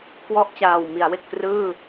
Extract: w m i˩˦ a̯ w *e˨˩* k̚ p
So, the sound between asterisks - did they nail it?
yes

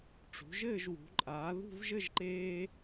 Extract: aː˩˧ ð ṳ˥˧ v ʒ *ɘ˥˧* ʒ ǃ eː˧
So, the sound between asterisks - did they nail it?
yes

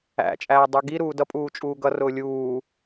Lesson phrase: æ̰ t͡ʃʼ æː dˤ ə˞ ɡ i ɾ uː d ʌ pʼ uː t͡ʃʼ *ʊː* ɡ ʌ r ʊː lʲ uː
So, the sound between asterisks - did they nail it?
no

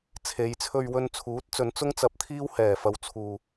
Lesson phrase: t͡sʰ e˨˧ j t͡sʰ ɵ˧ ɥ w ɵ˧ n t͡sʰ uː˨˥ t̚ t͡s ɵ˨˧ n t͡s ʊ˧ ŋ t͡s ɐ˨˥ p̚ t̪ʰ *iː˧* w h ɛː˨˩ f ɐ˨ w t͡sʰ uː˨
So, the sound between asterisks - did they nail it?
yes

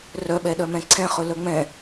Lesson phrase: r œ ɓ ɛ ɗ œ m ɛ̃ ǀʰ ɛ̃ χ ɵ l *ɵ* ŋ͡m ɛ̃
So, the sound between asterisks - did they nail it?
no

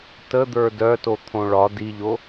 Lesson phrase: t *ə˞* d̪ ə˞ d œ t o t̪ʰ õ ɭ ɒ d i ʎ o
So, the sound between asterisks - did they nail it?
no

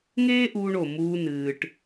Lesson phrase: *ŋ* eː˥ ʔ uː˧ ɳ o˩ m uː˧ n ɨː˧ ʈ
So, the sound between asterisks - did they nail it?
yes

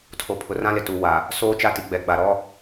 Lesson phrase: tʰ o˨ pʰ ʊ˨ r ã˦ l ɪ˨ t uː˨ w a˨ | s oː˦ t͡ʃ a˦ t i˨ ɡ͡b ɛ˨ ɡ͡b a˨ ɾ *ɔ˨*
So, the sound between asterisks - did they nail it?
no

